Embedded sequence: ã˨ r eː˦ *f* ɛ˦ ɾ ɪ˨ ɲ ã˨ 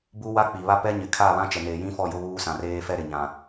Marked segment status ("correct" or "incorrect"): correct